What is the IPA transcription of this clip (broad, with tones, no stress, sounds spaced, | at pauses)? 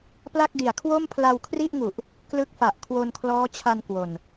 p l a˥˩ k̚ d i˨˩ a̯ kʰ w o˥˩ m pʰ l a˧ w kʰ r i˥˩ ʔ ŋ u˨˩ ʔ | k l ɯ˦˥ k̚ f a˨˩ ʔ kʰ w o˧ n kʰ l ɔː˦˥ t͡ɕʰ a˧ n k w o˨˩ n